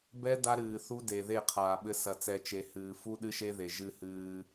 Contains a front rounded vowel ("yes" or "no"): no